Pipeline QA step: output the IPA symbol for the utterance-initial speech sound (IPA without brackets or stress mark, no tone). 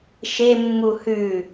ʃ